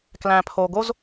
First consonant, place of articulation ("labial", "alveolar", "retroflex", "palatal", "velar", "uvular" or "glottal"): velar